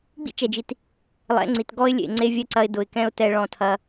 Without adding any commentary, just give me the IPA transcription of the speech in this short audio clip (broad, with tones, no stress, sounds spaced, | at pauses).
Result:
ɡ͡b ḭ˦ t͡ʃ ɛ˨ d͡ʒ i˨ t | lˠ ɛ̰˨˦ ŋ͡ǀ i˨ t ɡ ɔ˦ ɪ̯ lʲ ḛ˨ ŋ͡ǀ e˦ vʲ ɛ˦ ǀ ɐ˧ ɪ̯ d ʊ˨ ɪ̯ k ɛ̃˦ ʊ̯ t ɛ˧ ɭ ɔ̃˧ tʰ ɐ˧